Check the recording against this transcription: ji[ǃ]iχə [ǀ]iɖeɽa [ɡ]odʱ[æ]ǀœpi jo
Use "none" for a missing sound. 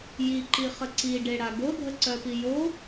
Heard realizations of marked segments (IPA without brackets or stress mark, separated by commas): ǃ, ǀ, ɡ, ə